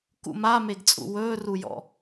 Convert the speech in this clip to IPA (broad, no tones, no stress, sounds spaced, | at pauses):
k ṵ m a m e ɡ t͡sʼ ṵ w ɵː r u j ɔ̰